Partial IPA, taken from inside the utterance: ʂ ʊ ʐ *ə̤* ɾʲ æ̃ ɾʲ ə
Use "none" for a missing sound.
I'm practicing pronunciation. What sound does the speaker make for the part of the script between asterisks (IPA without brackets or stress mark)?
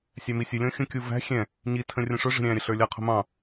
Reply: ə̤